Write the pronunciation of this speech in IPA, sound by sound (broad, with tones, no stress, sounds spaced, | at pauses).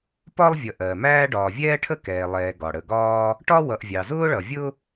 p ɒ˥ lˠ vʲ ʌ˨ ʔ ɜ˩ m æː˥ ɖ ɒː˨ vʲ ɛː˥ ʈʰ ə˥ k ɛː˨ lˠ ɛː˨ ɡ ɒ˩ ɽ ə˨ ɡ ɒː˥ | ʈ ɒ˥ w ʌ˨ ʔ vʲ ɑ˩ z ʊː˥ ɭ ʌ˩ vʲ ʊ˥